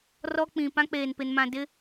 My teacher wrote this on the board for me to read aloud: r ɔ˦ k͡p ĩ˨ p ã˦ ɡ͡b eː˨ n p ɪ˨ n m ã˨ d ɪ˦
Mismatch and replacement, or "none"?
ɡ͡b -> k͡p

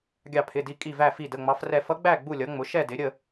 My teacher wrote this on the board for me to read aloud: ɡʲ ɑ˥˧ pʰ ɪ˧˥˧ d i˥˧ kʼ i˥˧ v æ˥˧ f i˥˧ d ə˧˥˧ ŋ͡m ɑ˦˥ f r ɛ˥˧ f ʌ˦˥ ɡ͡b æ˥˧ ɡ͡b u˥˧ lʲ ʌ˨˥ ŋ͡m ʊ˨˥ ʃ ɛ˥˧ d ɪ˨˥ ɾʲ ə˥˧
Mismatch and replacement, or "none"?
none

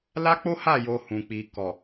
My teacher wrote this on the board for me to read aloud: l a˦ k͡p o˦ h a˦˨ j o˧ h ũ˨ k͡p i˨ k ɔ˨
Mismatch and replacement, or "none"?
none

